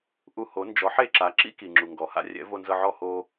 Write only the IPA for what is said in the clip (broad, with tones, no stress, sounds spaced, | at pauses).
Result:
ʔ u˧ h o˩˥ n d͡ʒ ɔ˩˥ ħ e˥˩ ǁ a˩˥ ǁ ḭ˥ k i˩ ŋ͡ǁ u˩ ŋ ɡ ɔ˩ h a̰˩˥ rʲ ɛ̰˩˥ v o˧ n z ɤ˧ ʕ ɔ˥˩ h o˧